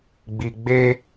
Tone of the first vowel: low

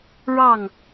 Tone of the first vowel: falling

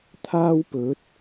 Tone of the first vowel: high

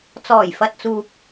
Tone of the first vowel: low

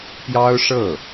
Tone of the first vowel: high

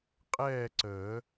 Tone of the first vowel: falling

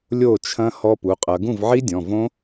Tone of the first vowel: falling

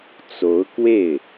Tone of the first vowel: rising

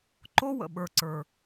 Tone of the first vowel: high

